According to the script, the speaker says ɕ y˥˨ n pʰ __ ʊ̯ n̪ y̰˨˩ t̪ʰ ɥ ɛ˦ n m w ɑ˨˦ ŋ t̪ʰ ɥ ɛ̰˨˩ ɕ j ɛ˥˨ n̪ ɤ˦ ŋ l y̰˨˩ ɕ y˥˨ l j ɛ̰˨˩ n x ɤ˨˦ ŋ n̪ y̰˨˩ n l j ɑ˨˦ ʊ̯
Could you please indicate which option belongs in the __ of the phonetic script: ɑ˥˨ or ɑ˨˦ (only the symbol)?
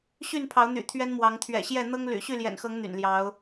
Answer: ɑ˨˦